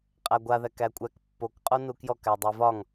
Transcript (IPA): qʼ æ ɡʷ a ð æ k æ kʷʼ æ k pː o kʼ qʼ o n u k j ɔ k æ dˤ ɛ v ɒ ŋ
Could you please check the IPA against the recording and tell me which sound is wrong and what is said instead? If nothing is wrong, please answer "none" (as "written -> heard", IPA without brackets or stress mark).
kʼ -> k